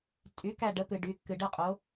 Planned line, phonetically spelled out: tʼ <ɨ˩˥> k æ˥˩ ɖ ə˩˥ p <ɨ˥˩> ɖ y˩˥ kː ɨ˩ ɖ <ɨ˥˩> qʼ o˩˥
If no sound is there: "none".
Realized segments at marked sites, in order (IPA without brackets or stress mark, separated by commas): y˩˥, ɨ˩, ɨ˥˩